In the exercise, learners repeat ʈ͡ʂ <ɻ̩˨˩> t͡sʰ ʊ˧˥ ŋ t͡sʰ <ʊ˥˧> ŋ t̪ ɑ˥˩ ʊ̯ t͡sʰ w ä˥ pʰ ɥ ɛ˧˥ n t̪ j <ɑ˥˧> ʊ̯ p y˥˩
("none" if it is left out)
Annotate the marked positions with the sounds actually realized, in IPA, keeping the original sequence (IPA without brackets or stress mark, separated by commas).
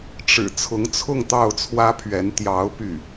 ɻ̩˨˩, ʊ˥˧, ɑ˧˥